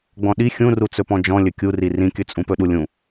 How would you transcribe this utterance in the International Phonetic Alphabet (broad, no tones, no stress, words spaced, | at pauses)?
ɡ͡bɔ̃ɗi xʲũrut͡sɵpɔ̃ d͡ʒɔ̃lʲɵ kʲuri rĩkʲɵt͡sʼũpɵ ɗulʲũ